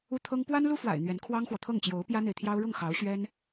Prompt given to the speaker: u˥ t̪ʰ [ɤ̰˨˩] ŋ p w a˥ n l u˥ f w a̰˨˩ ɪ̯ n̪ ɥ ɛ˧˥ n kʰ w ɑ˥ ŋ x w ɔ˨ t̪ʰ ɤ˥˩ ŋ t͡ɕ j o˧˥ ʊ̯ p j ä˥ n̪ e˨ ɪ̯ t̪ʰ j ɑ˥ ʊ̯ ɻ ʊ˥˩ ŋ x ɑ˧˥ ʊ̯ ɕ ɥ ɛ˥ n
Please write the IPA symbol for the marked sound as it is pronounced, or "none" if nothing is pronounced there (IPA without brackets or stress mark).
ɤ˥